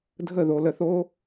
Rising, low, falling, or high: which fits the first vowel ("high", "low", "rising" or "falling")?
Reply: falling